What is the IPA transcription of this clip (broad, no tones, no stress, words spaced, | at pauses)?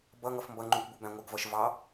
bʌ ŋʌfmbʌŋ͡ǃũkʷbu bæ̃ŋʷɪɡvʌʃ vɑ